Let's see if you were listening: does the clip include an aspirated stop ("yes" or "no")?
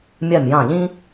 no